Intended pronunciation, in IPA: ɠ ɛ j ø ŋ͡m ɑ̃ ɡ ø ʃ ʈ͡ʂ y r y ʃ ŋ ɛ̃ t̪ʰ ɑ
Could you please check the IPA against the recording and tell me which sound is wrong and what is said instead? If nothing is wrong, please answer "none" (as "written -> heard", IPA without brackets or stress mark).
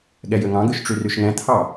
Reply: ŋ͡m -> ŋ